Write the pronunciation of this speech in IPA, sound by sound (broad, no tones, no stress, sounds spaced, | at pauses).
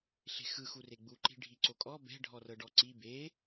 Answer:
ɬ e̤ x ɯ x u r e ɡ͡b u ǃ i̤ ɖʱ i ǀ o kʼ ɔ b ɛ̤ ɖʱ ɔ r ɤ ɖ ɔ ǀ i b e